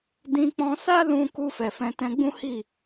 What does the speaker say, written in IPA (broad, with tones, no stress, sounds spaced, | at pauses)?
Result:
d ĩ˧ k͡p ɔ̃˧ s a˦ l ũ˧ k u˧ f ɛ˨ f ɛ̃˧ t ɛ̃˧ ɡ͡b ũ˦ h i˦˨